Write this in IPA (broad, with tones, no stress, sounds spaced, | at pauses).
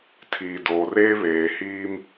tʰ iː˨ d oː˨ r eː˦ β eː˨ h iː˦ m